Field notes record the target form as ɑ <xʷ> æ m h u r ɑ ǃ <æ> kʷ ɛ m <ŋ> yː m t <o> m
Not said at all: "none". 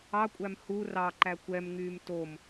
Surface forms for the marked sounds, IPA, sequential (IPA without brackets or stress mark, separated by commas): kʷʼ, æ, ŋ, o